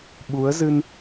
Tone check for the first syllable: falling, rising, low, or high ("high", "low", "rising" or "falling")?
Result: rising